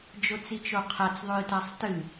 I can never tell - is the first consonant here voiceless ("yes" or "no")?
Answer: no